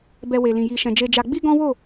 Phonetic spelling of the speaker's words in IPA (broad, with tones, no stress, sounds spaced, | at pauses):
b ɛ˧ w e˨ l ĩ˨ j i˨ ʃ ɛ̃˨ d͡ʒ e˧ d͡ʒ a˧ ɡ͡b i˦ ɡ ɔ̃˦ w o˦˨